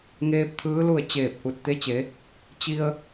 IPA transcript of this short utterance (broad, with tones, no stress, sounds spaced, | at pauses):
ŋ eː˧ p̚ t̪ʰ ɯː˧˥ l u˥˨ ə̯ t͡ɕ eː˧˩ p̚ ʔ u˧˩ t̚ t̪ e˧˥ t͡ɕ e˩˧ | t͡ɕ i˧ ə̯